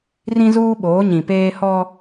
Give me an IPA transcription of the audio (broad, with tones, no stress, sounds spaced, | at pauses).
r ĩ˦ z uː˦ ɓ oː˨˦ ɲ ĩ˨ p eː˦ h ɔ˦